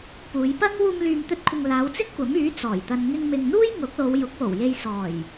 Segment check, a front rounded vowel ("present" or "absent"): present